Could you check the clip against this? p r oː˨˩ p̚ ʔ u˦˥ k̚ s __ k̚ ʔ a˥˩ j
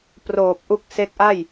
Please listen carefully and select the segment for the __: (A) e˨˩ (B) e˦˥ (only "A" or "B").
B